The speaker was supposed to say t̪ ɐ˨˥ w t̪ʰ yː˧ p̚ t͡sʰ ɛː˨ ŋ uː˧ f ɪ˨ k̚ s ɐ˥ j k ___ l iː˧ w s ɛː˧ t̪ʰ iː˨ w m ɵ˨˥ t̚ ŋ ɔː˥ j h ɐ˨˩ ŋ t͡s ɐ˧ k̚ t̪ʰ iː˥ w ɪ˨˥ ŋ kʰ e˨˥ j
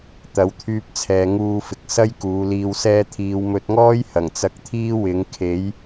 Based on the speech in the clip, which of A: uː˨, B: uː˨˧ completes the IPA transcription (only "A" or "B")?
B